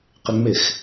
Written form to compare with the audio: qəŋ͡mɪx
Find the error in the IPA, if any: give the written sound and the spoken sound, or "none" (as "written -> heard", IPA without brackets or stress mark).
ə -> ɪ